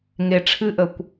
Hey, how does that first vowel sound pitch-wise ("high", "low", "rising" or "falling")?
low